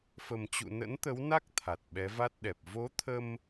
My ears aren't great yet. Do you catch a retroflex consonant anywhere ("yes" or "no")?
no